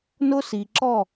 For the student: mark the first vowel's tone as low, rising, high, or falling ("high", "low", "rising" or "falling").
high